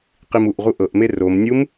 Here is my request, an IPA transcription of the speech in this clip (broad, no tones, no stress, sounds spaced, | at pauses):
q i m u ʔ ʁ u ʔ ɤ ʔ m e r o m nʲ u m